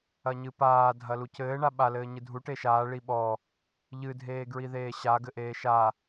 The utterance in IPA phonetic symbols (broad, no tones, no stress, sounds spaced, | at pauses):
ɐ ɲ ɨ p aː dʱ ɐ l u c ɘː ɳ a ɓ a l ɘː ɲ ɨ dʱ u ʈ e ʃ aː ɭ i ɓ ɔ | ʎ ɨ dʱ eː ɡ ɹ i ð eː ɕ a ɡ ɘ ʔ eː ʃ a